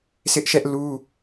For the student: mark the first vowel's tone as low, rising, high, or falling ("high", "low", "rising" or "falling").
high